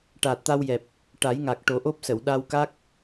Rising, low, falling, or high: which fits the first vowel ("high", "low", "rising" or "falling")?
low